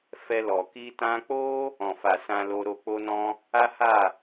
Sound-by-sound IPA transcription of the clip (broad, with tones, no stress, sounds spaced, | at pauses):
f ɛ˧ l ɔ˨ k i˧ t ã˧ k͡p o˦ | ɔ̃˨ f a˨ s ã˧ l o˧ ɾ o˧ k͡p o˦ n ɔ̃˦ | a˦ h a˦˨